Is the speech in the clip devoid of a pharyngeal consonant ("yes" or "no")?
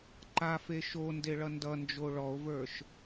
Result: yes